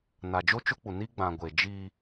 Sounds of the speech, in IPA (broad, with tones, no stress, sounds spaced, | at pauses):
n a˨ d͡ʒ o˦ t͡ʃ ʊ˦ k͡p u˨ n i˦ ɡ͡b ã˨ ɡʷ e˨ d͡ʒ i˦